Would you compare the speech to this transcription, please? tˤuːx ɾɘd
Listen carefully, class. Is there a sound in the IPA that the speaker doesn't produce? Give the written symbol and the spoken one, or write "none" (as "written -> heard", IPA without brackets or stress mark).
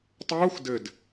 ɾ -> d